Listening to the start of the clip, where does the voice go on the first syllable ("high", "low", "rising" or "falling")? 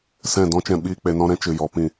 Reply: falling